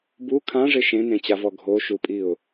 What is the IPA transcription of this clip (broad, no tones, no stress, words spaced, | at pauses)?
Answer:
bu kʰãʐɪ ʃẽnẽt͡ɕavɔ ɡʱoʃupʼiʊ̯